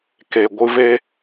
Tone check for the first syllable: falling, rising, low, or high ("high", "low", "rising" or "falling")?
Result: low